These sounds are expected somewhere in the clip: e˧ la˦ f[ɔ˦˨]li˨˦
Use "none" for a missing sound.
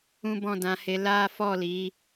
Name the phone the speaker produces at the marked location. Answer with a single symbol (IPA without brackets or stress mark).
ɔ˦˨